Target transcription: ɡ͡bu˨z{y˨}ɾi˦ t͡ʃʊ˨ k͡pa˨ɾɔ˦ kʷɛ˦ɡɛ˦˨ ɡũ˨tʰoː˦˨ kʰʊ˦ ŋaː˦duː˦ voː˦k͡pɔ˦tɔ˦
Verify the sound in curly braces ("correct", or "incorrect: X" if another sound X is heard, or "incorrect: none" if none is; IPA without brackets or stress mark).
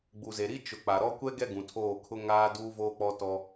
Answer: incorrect: e˨